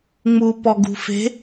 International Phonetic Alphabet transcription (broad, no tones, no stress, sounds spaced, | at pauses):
ŋ͡m u p ɔ ɡ ṳ f e̤